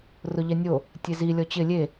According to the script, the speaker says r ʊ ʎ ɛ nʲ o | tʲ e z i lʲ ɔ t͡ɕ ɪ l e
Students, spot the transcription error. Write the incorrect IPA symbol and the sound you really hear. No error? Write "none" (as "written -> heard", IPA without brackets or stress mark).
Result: l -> lʲ